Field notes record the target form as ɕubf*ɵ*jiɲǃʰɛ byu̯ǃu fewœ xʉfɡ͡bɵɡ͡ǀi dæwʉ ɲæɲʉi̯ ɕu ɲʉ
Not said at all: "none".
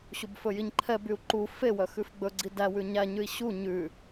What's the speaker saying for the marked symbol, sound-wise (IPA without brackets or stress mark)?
ɵ